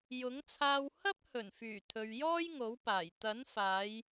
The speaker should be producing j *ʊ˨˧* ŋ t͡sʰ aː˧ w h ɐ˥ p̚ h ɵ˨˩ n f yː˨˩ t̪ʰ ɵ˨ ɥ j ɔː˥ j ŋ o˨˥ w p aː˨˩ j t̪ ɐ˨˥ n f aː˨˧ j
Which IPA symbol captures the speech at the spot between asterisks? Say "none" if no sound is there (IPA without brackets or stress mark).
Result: ʊ˨˥